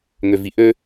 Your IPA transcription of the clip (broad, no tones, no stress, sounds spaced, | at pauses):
ŋ ø v i ʔ ø